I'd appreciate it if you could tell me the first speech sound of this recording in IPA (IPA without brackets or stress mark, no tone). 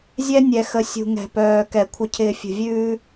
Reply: zʲ